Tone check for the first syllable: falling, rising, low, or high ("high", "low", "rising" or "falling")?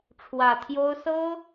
low